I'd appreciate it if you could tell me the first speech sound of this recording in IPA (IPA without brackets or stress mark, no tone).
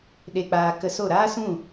ɗ